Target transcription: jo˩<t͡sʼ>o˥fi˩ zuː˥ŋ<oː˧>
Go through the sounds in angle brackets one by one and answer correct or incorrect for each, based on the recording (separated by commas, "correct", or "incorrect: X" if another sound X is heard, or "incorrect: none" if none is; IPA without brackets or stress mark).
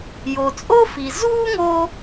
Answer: correct, incorrect: o˧